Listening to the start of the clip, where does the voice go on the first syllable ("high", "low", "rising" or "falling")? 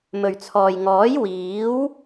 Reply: low